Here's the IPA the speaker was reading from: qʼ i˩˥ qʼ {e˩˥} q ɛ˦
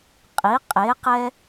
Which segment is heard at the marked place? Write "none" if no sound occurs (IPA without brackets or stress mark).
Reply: e˩˥